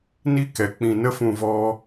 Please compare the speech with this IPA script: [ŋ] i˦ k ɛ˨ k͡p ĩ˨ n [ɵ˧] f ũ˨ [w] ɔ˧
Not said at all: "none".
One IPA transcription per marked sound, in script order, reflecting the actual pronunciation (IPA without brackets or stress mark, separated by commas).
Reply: n, ə˧, v